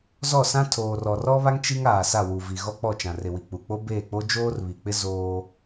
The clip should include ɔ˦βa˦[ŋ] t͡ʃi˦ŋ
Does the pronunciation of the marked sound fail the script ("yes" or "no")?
no